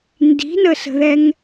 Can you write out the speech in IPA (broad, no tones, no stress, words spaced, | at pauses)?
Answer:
ndi̤nəsə̤ðɛŋ